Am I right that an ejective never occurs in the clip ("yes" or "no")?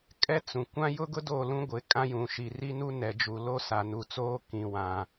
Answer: no